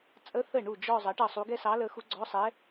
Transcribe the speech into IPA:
t͡sʼ ə˧˥˧ θ ə˥˩ ɳ u˥˩ d͡ʒ ɔ˥˧ zˤ ʌ˩˥ ʈ ʌ˥˩ sˤ u˧˥ ɡ ɛ˥˧ s ɑ˧˥ l ə˧˥ x u˧˥ ɡ͡ǀ ɔ˧˥˧ sˤ ɛ˧˥

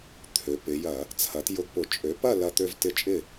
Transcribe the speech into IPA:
t̪ʰ ø˩˧ p ɪ˩˧ j ɐ˧˩˧ | t͡sʰ ɐ˩˥ t j ʊ˧ ɡ p ʊ˧˩˧ t͡ʃʼ ø˩˥ p ɐ˥˨ l ɐ˧ t̪ ø˧ v t ɪ˧ t͡ʃʼ ɪ˥˨

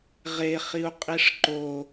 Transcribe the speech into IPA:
ʁ e χ i u̯ qʼ i ʂ ǃ o

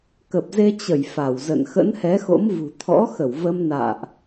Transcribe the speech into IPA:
k ə˨˩ p̚ z e˧ t͡ɕ ə˧˩ j f a˧˩ w z ə̰˧˨ n x ə̰˧˥ n h ɛ˨˦ x o̰˧˥ m v ṳ˨˩ t̪ʰ ɔ̰˧˥ x ə˧˩ w v ə˧ m n a̰ː˧˨ ʔ

